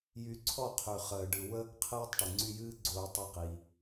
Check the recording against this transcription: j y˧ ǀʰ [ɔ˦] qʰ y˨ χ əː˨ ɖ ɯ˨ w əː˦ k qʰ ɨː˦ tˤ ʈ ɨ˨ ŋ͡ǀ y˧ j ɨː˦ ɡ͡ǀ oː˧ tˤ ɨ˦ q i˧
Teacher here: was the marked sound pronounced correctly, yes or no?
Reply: no